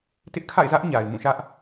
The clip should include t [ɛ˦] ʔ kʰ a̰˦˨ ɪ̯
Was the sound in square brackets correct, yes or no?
no